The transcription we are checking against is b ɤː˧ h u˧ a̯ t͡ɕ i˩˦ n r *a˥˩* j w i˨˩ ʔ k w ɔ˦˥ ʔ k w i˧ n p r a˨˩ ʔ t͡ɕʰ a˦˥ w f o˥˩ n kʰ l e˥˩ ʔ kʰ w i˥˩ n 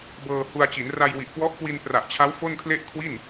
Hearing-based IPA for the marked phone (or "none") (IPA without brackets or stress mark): a˧